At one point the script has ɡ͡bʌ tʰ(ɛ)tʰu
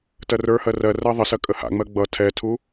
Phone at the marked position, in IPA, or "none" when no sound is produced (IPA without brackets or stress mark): ɛ